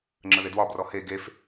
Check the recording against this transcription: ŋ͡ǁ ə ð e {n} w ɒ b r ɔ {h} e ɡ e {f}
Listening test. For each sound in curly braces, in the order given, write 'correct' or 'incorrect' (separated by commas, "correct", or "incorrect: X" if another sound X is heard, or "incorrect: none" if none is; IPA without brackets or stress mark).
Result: incorrect: d, correct, correct